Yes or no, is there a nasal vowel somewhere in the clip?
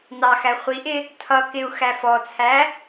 no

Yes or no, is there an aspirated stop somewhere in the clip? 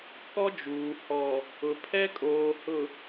yes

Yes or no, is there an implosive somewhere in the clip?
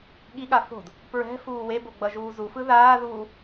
yes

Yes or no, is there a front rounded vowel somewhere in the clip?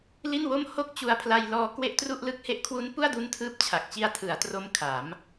no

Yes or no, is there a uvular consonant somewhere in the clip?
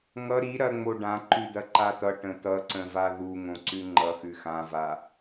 no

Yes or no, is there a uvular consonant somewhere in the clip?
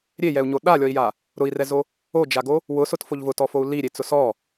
no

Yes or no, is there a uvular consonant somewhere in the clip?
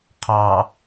yes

